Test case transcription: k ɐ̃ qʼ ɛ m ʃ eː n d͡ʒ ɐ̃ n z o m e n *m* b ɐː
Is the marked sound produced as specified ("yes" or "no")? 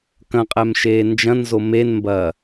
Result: yes